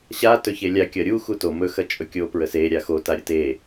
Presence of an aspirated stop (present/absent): absent